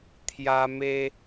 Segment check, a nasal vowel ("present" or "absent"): absent